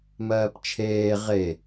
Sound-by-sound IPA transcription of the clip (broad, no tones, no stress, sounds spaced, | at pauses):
m ɜː p t͡ʃʰ eː ʁ e